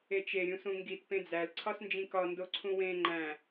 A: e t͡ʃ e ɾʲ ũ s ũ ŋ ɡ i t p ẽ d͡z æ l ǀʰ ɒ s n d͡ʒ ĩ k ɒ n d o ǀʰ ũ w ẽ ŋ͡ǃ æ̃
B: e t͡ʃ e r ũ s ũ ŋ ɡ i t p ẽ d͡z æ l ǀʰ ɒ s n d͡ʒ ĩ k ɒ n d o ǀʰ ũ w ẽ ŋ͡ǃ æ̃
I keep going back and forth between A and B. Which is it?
A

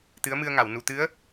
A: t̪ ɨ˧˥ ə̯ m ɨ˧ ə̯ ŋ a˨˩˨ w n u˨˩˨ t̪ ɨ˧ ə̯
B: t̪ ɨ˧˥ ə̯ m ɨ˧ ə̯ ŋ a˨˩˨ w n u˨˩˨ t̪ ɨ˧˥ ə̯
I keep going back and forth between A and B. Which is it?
B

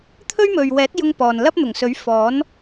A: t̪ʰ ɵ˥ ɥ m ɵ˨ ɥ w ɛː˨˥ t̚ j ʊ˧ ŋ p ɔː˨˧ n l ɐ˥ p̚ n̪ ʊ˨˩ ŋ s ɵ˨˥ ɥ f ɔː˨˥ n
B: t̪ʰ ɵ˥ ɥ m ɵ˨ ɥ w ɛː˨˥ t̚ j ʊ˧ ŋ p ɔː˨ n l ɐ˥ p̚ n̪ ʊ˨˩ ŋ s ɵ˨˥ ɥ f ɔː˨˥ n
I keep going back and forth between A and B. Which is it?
B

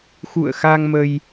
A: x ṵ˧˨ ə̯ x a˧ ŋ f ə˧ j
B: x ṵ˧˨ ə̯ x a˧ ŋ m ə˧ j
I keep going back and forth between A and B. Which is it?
B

